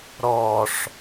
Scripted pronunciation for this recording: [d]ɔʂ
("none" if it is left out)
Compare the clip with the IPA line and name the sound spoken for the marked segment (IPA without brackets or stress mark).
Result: ɾ